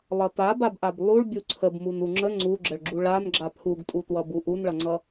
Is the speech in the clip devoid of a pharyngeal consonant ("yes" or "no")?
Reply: yes